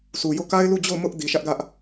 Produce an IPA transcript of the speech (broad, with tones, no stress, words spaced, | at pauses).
sʰu˨jo˦˨ ka˦ɪ̯lu˦˨d͡ʑo˦˨ʊ̯ mʊ˦ʔ di˨ʃä˦ʔɡä˦ʔ